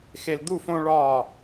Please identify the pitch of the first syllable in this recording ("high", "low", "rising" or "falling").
high